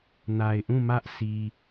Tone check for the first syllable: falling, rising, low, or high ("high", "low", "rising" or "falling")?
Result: low